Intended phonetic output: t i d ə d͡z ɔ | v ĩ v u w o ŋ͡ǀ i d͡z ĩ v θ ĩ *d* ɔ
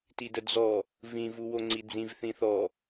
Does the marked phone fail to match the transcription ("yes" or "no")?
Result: yes